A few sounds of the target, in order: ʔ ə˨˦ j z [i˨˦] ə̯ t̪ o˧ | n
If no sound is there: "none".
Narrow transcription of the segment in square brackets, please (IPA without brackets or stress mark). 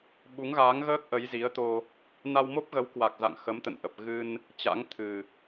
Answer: i˨˦